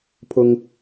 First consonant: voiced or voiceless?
voiceless